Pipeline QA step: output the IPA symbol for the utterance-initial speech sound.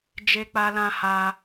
d͡ʒ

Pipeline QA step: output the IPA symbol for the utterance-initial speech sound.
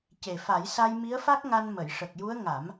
c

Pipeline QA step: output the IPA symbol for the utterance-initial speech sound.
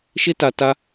ʃ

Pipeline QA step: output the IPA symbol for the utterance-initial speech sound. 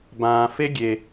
b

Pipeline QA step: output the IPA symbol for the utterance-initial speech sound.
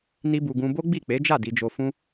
n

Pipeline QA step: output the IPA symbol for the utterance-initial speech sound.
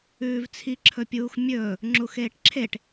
ʉː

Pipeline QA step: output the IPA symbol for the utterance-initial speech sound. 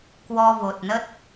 k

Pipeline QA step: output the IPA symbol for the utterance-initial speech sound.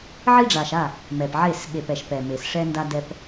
ʕ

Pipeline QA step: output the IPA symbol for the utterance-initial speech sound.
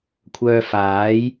kʷʰ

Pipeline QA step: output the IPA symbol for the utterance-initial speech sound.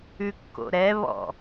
ʉ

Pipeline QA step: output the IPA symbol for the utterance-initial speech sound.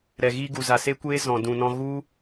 ɾ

